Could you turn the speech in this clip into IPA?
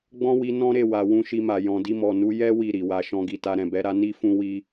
ɡ͡bɔ̃˦wi˧ nɔ̃˦ɾe˦˨ wa˨ wũ˧ʃi˧ma˨ jɔ̃˨di˧mɔ˨ nu˧ jɛ˦ wi˦˨ɾi˨wa˧ ʃɔ̃˧ɡi˨ta˧ ɾɛ̃˨bɛ˨˦ɾa˧ ni˦fũ˦wi˦

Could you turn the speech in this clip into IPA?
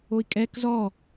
oi̯kʼɛk zɔ

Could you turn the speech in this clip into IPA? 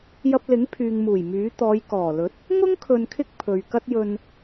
jɐ˧p̚lɪ˨˥ŋ pʰyː˨ŋmuː˨˩j myː˨˥ t̪ɔː˨˧j kɔː˨˩lɵ˨˥t̚ | ŋʊ˥ŋ kʰɵ˧nkʰɪ˥k̚ pʰɵ˨ɥ kɐ˥t̚jɵ˧n

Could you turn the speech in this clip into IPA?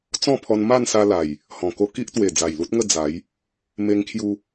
t͡sɔ̃˥˧pʰɔ˧n ma˥˧nsa˧la˨˩j | hɔ̃˨˩ko˥˧ ki˦ʔt̪we˨˩ d͡za˨˩jlu˦t̚ŋə˥˧ d͡za˨˦j | me˧ŋkʰju˧

